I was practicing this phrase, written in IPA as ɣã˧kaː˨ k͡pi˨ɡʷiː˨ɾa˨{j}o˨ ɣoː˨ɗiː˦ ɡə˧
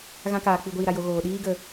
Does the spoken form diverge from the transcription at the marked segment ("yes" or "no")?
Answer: no